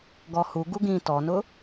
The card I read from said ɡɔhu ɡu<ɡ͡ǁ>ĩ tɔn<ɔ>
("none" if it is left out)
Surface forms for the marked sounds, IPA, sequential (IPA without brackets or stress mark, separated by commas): ɡ, ʊ